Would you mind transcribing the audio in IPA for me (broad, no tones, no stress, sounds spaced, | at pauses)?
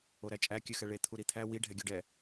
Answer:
o ɾ æ t͡ʃʼ æ kʲ ʉ x ɛ ɭ e t̪ʰ u ɾ i t̪ʰ æ w i ɖʱ ɛ ɡʲ u ɖ ɛ